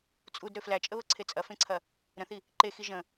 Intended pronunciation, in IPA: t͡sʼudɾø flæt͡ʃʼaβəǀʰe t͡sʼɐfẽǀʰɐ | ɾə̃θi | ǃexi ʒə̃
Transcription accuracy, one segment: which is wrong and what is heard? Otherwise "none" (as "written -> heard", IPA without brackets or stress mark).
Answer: a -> ə